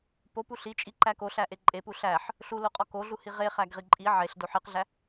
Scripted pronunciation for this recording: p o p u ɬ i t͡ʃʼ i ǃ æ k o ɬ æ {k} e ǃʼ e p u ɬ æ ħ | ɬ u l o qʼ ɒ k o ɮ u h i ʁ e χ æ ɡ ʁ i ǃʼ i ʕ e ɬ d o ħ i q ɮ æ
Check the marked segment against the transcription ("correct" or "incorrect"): incorrect